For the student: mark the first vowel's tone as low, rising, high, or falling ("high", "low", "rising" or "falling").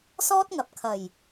high